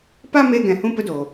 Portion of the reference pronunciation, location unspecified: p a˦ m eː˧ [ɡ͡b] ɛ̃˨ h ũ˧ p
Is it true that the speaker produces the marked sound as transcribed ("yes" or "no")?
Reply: no